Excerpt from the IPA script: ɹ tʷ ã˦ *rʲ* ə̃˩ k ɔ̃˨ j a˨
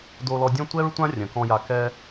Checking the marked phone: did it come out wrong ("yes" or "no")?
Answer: no